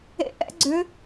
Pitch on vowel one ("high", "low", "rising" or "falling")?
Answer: rising